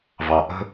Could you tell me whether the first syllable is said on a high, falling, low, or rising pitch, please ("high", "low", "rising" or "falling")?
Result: low